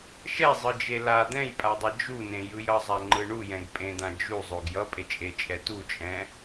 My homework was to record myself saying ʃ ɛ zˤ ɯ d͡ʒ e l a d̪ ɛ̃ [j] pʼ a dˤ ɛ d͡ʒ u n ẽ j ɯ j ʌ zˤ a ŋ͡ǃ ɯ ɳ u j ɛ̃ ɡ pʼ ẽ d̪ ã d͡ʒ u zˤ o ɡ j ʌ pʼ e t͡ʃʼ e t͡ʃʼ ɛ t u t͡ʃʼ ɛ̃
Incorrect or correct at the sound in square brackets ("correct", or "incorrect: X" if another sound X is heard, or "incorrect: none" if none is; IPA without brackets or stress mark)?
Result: correct